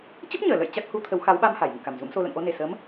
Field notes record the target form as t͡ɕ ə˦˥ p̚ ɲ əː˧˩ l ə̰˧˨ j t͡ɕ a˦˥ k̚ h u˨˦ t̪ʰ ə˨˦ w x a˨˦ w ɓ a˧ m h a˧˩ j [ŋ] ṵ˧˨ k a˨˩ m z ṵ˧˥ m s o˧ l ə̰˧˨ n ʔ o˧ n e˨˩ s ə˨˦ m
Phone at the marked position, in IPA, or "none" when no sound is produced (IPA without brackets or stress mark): ŋ